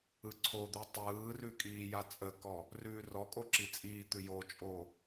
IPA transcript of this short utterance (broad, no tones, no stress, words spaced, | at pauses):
ɯǀʰod̪ʉ tˤɯːrʉ kʼiːjat͡sʼəkɔ | rʉːrɔkʼo ǁit͡sʼiːt̪ʉ jot͡ʃʼo